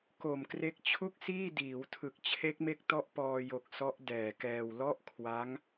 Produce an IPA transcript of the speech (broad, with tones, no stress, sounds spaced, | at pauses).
k o˨˩ m k r e˦˥ k̚ t͡ɕʰ u˥˩ k̚ s iː˥˩ d iː˩˦ w tʰ ɯ˨˩ k̚ t͡ɕʰ e˦˥ k̚ m e˦˥ k̚ t ɔ˦˥ ʔ p ɔː˧ j o˨˩ k̚ s ɔ˦˥ ʔ d ɛː˨˩ k ɛː˧ w l ɔ˥˩ ʔ kʰ w a˦˥ ŋ